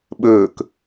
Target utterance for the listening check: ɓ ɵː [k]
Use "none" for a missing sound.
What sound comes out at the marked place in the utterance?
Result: k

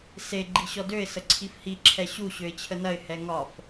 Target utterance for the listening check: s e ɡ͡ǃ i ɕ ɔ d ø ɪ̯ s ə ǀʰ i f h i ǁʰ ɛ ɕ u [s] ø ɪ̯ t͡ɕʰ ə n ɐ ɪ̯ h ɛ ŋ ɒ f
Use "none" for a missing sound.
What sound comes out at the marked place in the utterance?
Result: ɕ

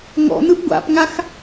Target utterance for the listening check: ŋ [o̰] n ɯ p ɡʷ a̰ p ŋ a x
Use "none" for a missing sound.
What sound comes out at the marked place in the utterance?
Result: ɔ̰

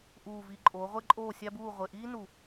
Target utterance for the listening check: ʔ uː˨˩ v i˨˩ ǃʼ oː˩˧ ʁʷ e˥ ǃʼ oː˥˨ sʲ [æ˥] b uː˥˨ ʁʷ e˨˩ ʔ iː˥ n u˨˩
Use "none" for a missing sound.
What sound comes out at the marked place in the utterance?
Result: æ˥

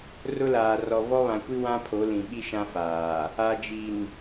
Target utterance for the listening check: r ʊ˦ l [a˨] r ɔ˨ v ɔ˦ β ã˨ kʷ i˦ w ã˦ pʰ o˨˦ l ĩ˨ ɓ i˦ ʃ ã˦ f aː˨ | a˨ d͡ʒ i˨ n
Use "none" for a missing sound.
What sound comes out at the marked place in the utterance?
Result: aː˨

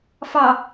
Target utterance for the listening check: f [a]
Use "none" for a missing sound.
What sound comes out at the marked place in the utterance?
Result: ɑ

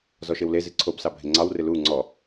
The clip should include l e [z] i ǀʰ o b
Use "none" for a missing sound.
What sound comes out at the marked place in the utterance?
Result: z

